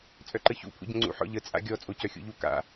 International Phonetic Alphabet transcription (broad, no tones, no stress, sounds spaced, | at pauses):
t͡sʼ œ ǃ ə ç ṵ pʰ ṵ ɟ ə̃ ŋ͡ǀ ṵ ħ ɔ̰ ʎ ə t͡sʼ a̰ ɡʲ ɔ t͡sʼ o c œ xʲ ṵ ʎ u k a̰